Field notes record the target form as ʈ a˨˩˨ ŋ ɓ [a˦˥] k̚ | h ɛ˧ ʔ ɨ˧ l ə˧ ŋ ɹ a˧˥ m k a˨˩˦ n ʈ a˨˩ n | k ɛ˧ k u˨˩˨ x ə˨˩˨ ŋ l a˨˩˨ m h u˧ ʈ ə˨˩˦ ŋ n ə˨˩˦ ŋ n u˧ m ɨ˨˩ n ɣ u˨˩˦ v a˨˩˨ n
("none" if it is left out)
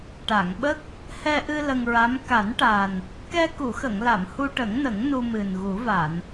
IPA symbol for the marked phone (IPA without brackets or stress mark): ə˦˥